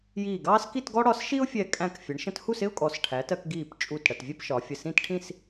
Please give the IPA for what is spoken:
jiː˧˩ɡɑː˥s ki˥˧tɡɔ˥ ɽɒ˧sʃi˥ʊ̯fʲɛ˧˩ kʼæ̃˧˩k fʲə˩˧ɳʃə̃˧thu˥˧sɪ˥ʊ̯ kʼɔ˩˧sʈʰæ˩˧tɜ˧k ɡiː˧˩pt͡ʃʼu˧˩t ɽə˧˩tvʲɛ˥pʃɒ˩˧fʲə˧˩ sĩ˥˧tʈʰĩ˥˧s

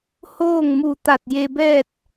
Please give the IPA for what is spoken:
hoː˥˨ŋmu˧˩t̪a˧˩t̚ je˧bɛː˥˨t̚

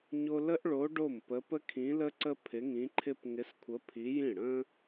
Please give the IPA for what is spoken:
ɲo˥ lə˥ʔɭo˧˥ ɖo˥˩mpə˧˥ pə˥kʰĩ˧˥lə˥ǀə˥ pʰɪ˧˥ŋĩ˧˥ǃʰɪ˥p ŋɪ˧˥skʷʰə˧˥ pʰi˧˥jĩ˥˩ ɽə̃˥

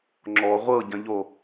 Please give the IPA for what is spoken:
ŋ͡ǁɔ ʁʷɤɟɐ̃ʎo

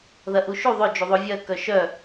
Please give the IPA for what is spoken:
ðɐʔuʃu ðˤʏ d͡ʒuðˤovʲɐ kœʃœ

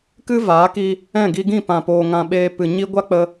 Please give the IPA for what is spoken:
kɨ˦ vaː˨˦ki˧ | ɛ̃˦˨ɡi˧ɡĩ˦˨ pã˨ poː˧ŋã˧ɓeː˧ pɨ˨ɲi˧ɡʷa˦k͡pə˧

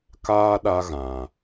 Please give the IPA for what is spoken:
kaː˦ ɗa˦ɣã˨

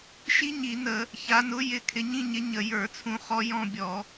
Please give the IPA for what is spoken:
ʃi˦˥ɲi˧˩˧nə˧˩˧ | ça˩˧nʊ˨˥ jɪ˧˩˧kʰɪ˩˧ɲĩ˦˨ɲɪ˨˥ ɲə˧˩˧jə˞˧˩˧t͡sʰũ˦˨χɔ˦˥ jɔ̃˦˨bʲɔ˧˩˧

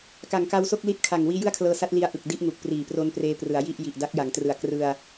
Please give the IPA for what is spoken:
ka˩˦ŋka˧wso˥˩k̚ li˦˥t̚kʰa˨˩ŋ wiː˦˥jɯ˥˩a̯kʰlɤː˧sa˦˥t̚ li˦˥a̯ ʔɯ˨˩k̚di˥˩ʔŋu˨˩k̚ priː˨˩pro˦˥npreː˧prɯ˩˦a̯ ji˥˩ʔ ji˨˩ʔda˦˥k̚ja˩˦ŋtrɯ˨˩a̯ krɯ˧a̯

